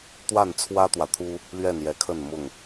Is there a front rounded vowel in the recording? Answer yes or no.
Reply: no